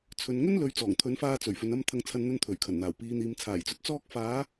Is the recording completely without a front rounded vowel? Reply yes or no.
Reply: yes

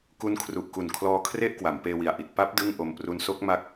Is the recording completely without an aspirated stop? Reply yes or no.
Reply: no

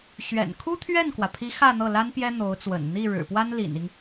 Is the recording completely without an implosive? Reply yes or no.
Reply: yes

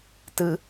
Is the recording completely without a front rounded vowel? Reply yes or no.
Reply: yes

